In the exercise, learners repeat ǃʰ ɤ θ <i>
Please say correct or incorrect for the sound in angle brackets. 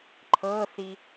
correct